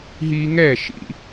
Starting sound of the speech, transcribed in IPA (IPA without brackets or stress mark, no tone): ɦ